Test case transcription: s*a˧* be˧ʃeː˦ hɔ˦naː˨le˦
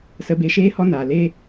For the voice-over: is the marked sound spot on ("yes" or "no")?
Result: no